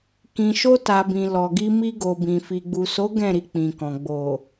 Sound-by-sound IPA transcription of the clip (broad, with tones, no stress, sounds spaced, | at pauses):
k ĩ˨ ʃ o˧ t a˨ b ĩ˨ l ɔ˨ ɡ i˧ m i˧ ɡ o˨ b ĩ˨ f i˨ ɡ͡b u˨ s o˨˦ ɡ ɛ̃˦˨ ɾ i˧ k͡p ĩ˨ k ɔ̃˨ ɡ͡b o˨